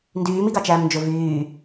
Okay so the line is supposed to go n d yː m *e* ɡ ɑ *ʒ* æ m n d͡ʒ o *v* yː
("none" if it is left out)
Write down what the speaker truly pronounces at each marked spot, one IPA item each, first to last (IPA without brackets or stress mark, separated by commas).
i, t͡ʃ, v